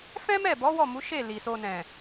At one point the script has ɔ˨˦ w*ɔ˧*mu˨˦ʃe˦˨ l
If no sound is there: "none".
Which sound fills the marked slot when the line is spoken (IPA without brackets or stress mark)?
ɔ˦˨